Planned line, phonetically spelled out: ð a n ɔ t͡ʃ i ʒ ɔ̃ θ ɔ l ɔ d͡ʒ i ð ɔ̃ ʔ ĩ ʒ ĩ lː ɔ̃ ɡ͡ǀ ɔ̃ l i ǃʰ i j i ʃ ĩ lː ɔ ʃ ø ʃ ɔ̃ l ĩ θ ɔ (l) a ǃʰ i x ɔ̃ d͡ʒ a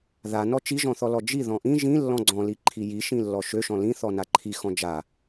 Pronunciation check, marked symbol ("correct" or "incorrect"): incorrect